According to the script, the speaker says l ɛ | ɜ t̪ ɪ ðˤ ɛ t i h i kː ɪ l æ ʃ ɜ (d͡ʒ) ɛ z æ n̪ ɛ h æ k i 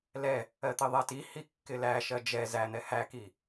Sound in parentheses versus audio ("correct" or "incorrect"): correct